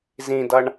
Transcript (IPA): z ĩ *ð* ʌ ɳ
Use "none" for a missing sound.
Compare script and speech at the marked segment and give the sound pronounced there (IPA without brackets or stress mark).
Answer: d